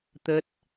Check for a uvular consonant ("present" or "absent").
absent